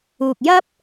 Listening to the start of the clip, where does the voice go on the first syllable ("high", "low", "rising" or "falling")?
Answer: low